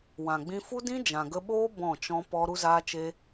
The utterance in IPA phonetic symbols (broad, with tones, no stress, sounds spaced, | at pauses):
w ã˨ ɡ͡b ĩ˧ f u˦ d ĩ˦ d͡ʒ ã˨ ɡ ə˧ ɓ oː˦ b ɔ̃˦˨ t͡ʃ ɔ̃˦ p ɔ˦ ɾ u˦ z aː˦ t͡ʃ e˦